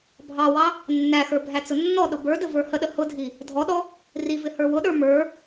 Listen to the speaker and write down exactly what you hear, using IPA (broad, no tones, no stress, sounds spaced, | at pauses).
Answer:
bʱ ɑ w ɑ | nː æ x ə˞ bʱ æ t͡s ʊ nː ɔ ɗ ʊ b ə˞ d ə v ə˞ h ə ɗ ə h ʊ dʱ i | dʱ ɔ ɗ ɔ | r i v ɪ h ə˞ w ʊ ɗ ə˞ m ə˞